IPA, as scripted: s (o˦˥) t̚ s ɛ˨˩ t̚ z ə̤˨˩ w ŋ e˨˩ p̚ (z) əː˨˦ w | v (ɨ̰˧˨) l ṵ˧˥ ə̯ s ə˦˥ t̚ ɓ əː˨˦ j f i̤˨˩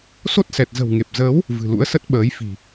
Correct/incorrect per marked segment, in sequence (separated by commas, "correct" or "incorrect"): correct, correct, incorrect